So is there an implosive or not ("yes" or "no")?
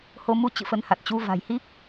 no